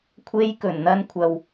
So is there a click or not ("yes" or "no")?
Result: no